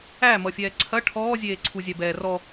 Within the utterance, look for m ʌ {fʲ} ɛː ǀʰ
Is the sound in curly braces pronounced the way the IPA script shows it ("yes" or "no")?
yes